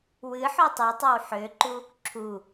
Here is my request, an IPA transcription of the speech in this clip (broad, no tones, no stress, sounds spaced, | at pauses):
w ɨ ħ o tˤ u tˤ a w ħ ø ǃ u | ǁʰ u